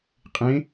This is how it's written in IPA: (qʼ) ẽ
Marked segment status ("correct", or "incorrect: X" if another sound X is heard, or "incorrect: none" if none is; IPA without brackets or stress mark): correct